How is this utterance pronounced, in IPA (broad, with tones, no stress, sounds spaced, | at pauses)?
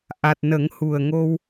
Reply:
ʔ a˨˩ t̚ n ə˨˩˦ ŋ h u˨˩ ə̯ ŋ o˧ w